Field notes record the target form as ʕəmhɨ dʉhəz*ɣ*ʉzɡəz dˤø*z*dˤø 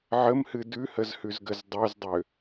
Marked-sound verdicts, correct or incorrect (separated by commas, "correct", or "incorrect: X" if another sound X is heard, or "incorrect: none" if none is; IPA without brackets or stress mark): incorrect: h, correct